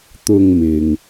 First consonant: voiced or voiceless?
voiceless